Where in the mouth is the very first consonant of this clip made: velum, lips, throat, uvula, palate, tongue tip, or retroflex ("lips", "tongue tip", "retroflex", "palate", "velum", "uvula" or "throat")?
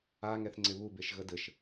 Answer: velum